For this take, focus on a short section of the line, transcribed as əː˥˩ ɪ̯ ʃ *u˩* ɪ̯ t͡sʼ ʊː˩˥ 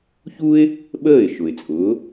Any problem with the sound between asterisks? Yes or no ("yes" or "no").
yes